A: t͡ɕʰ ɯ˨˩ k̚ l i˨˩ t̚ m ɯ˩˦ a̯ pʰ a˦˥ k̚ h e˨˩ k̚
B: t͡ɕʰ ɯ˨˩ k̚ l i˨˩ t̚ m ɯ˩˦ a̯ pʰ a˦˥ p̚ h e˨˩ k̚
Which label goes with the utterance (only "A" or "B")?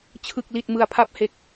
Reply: B